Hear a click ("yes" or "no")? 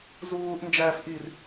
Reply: no